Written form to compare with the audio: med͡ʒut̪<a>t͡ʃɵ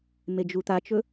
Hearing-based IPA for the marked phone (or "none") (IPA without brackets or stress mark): a